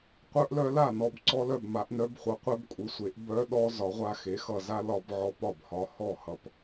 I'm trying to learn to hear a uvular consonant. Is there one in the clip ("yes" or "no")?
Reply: yes